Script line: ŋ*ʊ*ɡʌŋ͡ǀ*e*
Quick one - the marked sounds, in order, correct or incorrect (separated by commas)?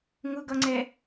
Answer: correct, incorrect